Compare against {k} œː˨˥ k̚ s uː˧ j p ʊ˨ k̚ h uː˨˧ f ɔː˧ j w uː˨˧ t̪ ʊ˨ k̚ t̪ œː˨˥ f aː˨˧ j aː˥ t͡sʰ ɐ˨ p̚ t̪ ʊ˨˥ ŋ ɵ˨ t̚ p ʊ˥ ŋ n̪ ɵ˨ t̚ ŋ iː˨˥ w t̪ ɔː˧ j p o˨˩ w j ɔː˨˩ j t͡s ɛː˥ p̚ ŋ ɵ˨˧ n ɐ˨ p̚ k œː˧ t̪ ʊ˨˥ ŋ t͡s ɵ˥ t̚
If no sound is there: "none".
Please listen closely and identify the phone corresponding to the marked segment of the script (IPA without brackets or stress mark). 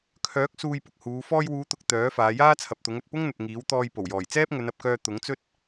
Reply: kʰ